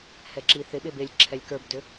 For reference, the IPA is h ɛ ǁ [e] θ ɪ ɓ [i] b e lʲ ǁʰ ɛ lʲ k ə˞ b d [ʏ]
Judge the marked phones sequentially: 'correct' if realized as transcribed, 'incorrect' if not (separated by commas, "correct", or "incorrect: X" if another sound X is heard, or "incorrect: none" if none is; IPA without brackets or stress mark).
incorrect: i, incorrect: e, correct